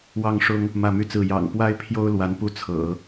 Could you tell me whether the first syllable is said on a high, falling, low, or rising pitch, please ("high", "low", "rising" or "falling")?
falling